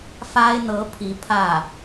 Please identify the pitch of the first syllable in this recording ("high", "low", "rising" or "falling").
high